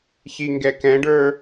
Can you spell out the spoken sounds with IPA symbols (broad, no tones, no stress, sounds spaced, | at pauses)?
ç i ŋ ɡ ɛ k ɛ̃ ɖ ə˞